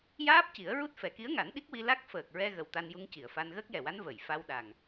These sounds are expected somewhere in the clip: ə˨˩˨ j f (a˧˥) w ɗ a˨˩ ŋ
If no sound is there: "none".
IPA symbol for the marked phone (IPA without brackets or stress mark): a˧